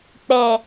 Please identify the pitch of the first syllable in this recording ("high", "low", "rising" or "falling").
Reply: low